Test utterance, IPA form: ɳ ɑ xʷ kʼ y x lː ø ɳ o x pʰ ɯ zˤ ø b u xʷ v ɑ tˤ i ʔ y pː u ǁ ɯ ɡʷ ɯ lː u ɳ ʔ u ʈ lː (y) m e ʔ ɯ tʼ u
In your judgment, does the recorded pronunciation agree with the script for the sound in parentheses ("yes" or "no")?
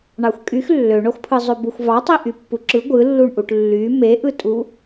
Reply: yes